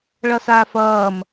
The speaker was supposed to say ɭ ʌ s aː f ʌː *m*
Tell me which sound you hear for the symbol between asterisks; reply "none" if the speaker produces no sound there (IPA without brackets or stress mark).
m